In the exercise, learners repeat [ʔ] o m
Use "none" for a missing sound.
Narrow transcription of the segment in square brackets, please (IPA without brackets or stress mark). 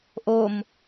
ʔ